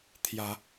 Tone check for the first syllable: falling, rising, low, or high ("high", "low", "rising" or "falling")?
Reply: rising